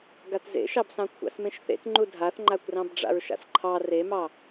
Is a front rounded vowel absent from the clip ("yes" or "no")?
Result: yes